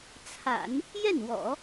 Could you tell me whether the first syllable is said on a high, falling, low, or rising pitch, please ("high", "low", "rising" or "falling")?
low